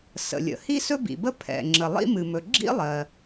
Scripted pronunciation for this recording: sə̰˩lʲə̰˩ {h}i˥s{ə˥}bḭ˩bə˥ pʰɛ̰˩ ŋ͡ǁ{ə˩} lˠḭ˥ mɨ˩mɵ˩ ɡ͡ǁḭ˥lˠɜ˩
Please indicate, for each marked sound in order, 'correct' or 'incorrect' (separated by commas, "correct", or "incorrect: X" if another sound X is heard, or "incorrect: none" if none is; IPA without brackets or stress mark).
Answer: correct, incorrect: ɵ˥, correct